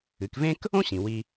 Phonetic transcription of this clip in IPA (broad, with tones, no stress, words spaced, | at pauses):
ɨ˩˧kvẽ˥k | õ˥ ɕĩ˩wi˧